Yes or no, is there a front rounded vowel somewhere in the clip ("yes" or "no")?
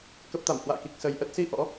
no